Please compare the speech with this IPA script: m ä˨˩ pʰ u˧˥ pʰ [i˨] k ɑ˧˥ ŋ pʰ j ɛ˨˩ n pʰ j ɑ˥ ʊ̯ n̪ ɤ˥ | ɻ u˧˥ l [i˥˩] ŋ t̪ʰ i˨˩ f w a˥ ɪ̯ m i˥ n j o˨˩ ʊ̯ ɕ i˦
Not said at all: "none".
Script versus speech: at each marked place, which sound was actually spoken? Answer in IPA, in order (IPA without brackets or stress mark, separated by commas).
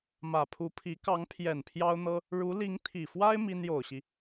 i˧˥, i˧˥